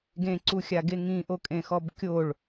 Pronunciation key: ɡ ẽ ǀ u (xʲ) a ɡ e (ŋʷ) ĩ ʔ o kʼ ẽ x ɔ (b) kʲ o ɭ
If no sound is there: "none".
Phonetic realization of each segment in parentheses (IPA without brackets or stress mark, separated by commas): xʲ, ŋ, b